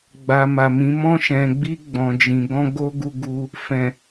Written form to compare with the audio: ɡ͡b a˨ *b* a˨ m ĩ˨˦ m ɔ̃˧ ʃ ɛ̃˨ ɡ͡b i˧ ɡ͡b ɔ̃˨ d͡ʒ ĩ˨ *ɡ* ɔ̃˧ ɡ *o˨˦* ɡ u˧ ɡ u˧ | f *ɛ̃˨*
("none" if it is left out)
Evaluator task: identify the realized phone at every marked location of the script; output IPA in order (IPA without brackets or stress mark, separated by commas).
m, ɡ, o˦, ɛ̃˨